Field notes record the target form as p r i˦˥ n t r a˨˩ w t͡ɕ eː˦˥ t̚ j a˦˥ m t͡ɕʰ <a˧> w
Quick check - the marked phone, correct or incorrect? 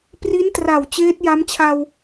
correct